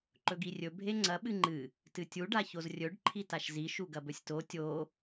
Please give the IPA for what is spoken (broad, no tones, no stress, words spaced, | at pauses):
ǃɵɡirʲɵ bʱeŋ͡ǀɐ ɓɨŋ͡ǃɨ | tɨtʲu ɖaçozrʲɵɖ ǃʰitaʃzi ʃuɡɐbɵsʲto tʲo